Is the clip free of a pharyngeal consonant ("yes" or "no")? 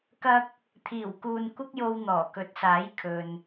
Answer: yes